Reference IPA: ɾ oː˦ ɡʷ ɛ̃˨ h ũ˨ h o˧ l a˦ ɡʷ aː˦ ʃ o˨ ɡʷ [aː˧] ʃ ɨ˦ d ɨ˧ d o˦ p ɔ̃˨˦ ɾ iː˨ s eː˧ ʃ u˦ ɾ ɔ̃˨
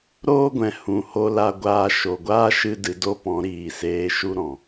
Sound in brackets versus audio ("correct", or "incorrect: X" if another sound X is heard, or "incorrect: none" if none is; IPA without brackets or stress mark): incorrect: aː˦